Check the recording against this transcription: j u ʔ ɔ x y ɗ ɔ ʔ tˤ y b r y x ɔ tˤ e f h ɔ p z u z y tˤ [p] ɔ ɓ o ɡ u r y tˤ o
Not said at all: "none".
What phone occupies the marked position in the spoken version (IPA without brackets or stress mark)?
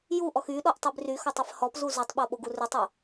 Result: ɓ